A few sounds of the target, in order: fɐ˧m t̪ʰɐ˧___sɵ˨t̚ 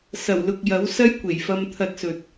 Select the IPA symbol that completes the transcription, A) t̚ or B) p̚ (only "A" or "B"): A